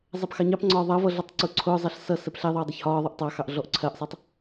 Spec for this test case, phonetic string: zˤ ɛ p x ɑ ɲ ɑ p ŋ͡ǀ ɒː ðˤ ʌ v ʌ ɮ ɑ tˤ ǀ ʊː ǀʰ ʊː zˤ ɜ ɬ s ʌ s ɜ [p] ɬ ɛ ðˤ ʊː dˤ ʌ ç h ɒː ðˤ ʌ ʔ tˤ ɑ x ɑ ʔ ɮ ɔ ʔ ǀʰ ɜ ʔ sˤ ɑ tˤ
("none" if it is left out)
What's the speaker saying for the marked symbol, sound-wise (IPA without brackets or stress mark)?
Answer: p